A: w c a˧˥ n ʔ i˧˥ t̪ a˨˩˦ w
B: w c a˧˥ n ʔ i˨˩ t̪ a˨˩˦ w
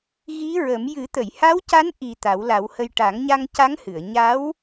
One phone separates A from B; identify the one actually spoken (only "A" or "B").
B